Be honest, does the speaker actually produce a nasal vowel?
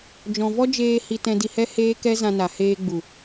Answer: yes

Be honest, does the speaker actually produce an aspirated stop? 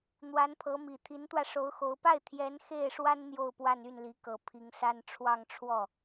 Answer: yes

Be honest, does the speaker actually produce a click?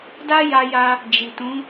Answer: no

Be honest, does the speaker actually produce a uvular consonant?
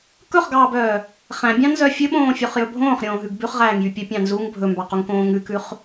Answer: yes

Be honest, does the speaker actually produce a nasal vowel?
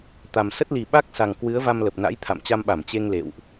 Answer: no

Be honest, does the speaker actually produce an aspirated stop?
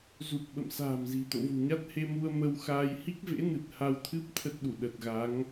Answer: yes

